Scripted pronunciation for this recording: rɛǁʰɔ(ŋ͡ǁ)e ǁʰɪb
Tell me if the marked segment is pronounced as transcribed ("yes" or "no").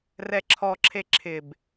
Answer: no